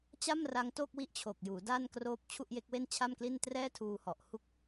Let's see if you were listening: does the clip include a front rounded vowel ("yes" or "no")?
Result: no